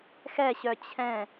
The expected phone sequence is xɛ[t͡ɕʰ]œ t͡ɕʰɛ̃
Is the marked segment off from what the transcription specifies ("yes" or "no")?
yes